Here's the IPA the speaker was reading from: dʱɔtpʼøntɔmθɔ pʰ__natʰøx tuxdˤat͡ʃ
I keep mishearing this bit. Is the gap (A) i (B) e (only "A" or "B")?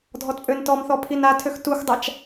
A